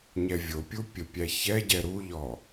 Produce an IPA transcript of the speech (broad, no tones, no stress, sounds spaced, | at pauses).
ɲ ɛ vʲ o pʲ u pʲ ə pʲ æ ç ɛ ɟ ɛ ɾ u ʎ ɔ